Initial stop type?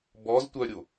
plain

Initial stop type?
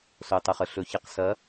plain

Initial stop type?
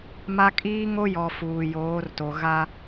ejective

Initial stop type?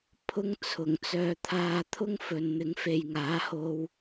aspirated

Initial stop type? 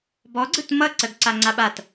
plain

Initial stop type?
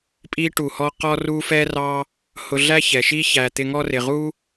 ejective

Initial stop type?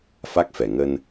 plain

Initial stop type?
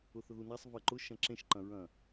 click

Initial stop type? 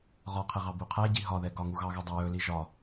aspirated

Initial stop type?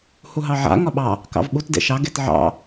implosive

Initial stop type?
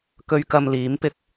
plain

